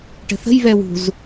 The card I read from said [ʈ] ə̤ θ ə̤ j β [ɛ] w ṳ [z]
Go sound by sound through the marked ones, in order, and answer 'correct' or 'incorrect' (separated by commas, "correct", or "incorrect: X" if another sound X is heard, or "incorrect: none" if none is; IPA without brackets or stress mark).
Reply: correct, correct, correct